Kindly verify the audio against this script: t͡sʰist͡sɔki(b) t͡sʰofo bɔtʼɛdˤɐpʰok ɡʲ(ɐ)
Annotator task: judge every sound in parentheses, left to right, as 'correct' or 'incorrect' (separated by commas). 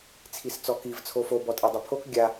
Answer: incorrect, incorrect